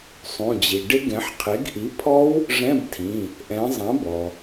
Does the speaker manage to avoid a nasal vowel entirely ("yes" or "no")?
no